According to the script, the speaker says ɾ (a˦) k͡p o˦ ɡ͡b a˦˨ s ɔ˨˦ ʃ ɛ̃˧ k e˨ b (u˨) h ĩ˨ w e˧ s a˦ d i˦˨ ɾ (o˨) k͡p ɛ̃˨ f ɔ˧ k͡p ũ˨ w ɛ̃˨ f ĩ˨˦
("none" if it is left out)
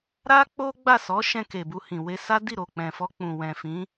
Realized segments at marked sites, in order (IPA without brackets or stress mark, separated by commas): a˦, u˧, o˨